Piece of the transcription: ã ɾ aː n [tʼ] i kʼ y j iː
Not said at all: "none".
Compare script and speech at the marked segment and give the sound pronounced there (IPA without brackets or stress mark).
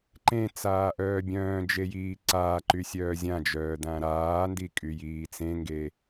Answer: d